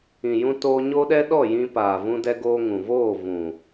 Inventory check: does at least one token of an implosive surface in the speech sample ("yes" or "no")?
yes